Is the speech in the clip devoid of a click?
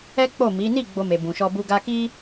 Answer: yes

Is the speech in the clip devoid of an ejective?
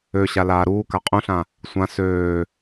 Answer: no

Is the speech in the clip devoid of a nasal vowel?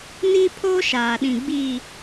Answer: no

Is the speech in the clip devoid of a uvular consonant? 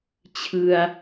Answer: yes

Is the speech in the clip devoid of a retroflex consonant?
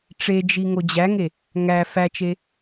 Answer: no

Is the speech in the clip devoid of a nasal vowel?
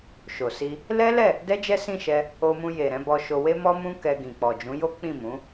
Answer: no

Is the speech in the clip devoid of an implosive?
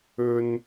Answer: yes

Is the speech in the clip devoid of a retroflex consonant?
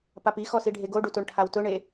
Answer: no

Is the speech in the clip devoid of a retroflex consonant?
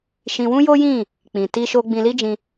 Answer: yes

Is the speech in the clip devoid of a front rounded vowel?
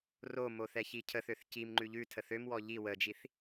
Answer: no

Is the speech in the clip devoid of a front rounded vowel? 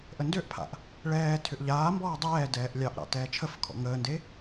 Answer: no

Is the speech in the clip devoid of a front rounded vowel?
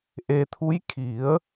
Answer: yes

